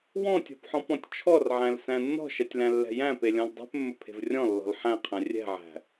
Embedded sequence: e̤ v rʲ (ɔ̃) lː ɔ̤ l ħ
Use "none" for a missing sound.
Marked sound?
ɔ̃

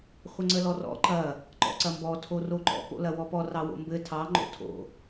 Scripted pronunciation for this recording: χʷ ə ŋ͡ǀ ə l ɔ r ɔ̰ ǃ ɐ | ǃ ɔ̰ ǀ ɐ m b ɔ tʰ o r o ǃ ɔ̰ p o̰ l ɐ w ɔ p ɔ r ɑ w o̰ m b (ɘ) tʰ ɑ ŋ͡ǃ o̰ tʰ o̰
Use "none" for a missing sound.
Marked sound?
ɘ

